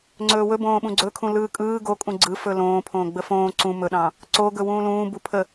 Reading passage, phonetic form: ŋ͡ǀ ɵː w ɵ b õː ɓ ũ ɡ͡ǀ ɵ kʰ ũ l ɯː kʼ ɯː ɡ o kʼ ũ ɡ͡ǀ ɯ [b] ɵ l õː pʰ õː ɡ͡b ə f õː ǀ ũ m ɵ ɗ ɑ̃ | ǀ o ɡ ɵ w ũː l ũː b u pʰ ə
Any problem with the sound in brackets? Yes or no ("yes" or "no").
yes